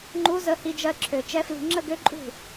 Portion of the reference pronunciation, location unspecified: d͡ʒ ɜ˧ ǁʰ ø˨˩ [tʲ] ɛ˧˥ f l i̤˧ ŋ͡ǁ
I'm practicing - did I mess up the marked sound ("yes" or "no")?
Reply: yes